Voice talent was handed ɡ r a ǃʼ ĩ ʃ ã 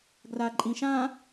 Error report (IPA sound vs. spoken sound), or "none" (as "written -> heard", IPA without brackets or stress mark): none